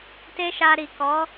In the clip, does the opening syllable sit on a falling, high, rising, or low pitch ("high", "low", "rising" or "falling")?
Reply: high